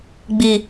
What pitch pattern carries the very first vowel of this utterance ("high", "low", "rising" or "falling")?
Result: low